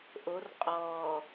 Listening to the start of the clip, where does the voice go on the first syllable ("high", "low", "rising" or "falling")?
rising